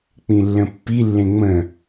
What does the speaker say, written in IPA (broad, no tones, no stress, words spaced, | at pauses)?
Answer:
k͡pĩlːə̃pːilːẽ ŋ͡mə̃